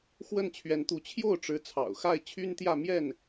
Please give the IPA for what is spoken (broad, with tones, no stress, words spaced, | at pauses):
xwə˥˩nt͡ɕʰɥɛ˧˥nt̪u˧˥ t͡ɕʰjo˥˩ʊ̯ʈ͡ʂɻ̩˧˥ t͡sʰɑ̰˨˩ʊ̯xa˥˩ɪ̯t͡ɕʰy˥nt̪jä˥˧ mjɛ˥˩n